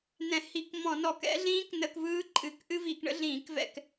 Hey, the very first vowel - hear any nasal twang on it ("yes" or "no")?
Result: yes